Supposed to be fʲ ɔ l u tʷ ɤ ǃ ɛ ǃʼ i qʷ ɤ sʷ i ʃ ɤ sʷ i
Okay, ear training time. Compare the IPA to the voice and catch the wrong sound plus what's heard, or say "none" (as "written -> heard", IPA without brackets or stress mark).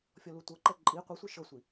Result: none